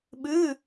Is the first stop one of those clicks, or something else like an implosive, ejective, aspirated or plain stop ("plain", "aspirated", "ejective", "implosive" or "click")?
implosive